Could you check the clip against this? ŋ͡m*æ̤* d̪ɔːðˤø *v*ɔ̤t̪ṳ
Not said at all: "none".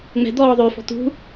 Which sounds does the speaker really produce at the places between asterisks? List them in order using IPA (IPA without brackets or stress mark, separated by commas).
ɛ̤, f